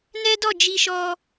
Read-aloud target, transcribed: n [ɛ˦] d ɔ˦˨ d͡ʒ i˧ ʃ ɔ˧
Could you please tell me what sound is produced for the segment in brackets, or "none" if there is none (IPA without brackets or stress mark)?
ɛ˦